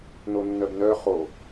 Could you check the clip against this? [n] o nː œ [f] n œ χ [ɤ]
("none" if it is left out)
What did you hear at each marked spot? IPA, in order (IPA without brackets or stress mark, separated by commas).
n, b, o